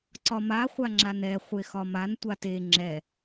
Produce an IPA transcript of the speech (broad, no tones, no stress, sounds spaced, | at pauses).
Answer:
ǀ ɒ m a χʷ a ŋ͡ǁ a n ɛ χʷ e x ɒ m a n tʷ a t e ŋ͡ǁ ɛ